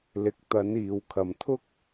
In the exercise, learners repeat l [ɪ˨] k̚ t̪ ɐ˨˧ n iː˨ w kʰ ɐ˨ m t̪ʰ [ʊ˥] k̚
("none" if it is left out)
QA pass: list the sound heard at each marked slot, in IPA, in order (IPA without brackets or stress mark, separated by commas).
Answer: ɪ˨, ʊ˥